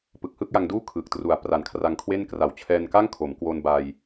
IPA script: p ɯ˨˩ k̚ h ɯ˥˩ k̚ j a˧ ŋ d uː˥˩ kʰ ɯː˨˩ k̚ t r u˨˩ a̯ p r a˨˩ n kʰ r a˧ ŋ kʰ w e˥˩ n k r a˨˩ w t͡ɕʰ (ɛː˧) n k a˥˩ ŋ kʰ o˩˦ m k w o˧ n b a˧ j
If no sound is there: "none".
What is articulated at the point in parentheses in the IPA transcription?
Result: ɛː˧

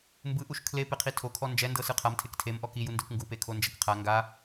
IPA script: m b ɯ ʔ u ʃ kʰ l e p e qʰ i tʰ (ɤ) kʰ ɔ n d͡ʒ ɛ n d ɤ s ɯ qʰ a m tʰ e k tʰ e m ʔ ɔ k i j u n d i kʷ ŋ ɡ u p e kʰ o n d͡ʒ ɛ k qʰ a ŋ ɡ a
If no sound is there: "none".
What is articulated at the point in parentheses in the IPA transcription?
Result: o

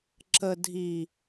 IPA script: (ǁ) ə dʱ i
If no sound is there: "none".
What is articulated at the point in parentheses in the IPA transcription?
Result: ǁ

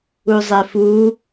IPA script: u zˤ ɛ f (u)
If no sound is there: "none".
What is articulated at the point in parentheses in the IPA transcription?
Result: u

